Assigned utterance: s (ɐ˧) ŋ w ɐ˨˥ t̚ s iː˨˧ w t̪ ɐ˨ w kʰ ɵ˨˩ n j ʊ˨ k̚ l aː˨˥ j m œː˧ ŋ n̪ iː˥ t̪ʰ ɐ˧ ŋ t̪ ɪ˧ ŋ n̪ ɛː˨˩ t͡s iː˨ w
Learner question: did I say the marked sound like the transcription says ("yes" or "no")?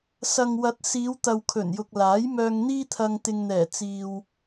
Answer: no